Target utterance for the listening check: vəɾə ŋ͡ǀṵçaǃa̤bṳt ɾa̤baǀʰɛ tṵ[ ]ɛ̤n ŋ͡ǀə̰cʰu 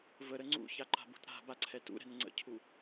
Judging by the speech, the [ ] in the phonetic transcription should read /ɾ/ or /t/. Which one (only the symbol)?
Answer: ɾ